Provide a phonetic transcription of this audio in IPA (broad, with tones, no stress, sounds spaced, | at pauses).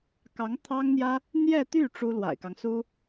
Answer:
k ɑ˧˥ ŋ t̪ʰ ɑ˥ ŋ n̪ j ä˥ | n̪ j ɛ˥˧ t̪ y˥˩ ʈ͡ʂ u˥ l w a̰˨˩ ɪ̯ k ɑ˦ ŋ s u˥